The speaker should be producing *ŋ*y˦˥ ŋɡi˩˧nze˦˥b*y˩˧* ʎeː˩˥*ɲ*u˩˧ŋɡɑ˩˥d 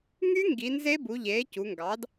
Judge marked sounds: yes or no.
yes, no, no

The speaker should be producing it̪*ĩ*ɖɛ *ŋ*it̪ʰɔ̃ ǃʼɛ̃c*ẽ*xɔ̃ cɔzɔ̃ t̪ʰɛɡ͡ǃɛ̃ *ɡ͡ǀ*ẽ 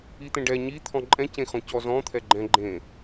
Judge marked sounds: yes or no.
no, no, yes, no

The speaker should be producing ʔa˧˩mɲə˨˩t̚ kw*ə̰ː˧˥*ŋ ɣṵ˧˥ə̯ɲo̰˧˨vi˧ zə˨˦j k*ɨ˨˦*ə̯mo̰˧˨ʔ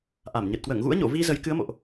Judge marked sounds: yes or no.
no, yes

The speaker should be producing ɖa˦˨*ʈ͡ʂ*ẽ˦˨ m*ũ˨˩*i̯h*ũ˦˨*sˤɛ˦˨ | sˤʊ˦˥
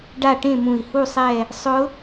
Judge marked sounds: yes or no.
no, yes, no

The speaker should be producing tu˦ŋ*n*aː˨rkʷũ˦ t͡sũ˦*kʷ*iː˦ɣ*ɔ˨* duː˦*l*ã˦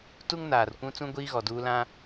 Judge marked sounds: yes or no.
yes, no, yes, yes

